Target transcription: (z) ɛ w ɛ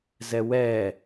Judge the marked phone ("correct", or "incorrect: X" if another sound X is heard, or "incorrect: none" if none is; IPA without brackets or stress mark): correct